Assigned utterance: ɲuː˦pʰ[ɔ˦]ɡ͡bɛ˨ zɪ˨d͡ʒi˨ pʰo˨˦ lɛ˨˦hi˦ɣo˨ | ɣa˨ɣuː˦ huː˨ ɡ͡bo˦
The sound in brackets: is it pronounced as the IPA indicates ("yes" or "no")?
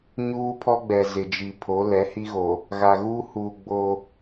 yes